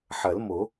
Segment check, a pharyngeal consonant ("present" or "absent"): present